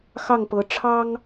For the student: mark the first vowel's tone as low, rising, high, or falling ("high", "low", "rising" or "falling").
falling